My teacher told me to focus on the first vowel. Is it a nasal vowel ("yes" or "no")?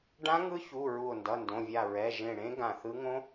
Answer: yes